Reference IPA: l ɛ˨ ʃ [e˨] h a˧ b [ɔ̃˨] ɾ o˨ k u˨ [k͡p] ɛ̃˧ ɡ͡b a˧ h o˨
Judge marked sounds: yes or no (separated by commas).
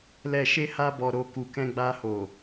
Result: no, no, no